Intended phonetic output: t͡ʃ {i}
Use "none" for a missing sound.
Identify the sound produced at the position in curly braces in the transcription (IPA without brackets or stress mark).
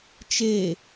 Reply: e